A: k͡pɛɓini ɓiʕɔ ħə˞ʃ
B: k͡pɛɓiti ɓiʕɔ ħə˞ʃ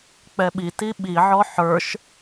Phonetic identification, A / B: B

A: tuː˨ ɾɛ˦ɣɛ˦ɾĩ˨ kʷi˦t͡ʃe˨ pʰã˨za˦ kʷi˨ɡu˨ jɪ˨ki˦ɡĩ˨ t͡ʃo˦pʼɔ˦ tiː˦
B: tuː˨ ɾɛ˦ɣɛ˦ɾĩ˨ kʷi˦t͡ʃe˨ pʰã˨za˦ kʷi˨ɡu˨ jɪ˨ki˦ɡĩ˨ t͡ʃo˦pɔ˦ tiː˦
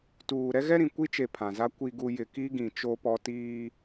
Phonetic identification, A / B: B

